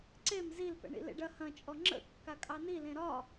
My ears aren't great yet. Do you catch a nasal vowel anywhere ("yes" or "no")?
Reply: yes